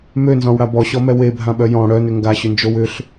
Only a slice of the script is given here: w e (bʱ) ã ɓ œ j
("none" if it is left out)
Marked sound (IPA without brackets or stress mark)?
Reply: bʱ